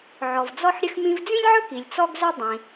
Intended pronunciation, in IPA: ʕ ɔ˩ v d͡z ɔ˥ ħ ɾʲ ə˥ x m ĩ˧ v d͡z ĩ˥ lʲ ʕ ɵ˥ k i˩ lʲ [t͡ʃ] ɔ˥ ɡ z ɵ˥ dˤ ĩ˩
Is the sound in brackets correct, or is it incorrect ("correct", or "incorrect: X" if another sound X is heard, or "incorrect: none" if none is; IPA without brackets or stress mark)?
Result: incorrect: t͡s